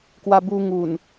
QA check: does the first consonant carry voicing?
no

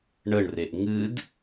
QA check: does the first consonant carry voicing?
yes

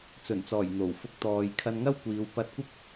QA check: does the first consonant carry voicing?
no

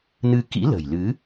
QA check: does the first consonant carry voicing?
yes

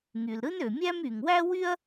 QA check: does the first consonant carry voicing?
yes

